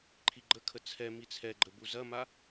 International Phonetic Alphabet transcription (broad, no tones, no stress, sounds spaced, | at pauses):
ǃʰ i ɡ͡ǃ ə kʰ ə t͡sʰ ɛ m i t͡sʰ ɛ ɡ͡ǃ ə b u z ɐ m a